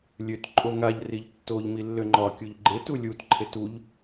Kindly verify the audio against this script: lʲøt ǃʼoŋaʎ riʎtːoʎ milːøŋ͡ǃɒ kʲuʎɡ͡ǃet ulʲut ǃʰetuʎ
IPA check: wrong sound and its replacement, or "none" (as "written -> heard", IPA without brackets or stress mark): none